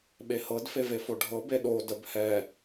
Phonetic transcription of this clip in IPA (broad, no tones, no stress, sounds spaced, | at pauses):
ɓ e h ɤ d f e v e f o ɖʱ ɤ b e ɗ o d ə b h ɛ